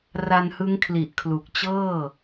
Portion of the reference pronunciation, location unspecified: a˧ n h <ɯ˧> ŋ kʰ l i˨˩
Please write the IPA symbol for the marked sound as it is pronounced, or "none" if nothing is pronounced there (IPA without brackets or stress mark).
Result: ɯ˦˥